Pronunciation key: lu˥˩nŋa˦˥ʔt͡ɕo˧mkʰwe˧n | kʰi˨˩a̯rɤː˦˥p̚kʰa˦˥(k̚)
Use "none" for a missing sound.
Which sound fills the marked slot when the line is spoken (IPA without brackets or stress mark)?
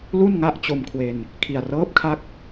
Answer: k̚